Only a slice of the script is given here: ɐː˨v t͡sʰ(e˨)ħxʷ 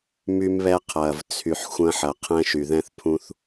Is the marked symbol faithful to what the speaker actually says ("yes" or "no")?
no